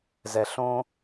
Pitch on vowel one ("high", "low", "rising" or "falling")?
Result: low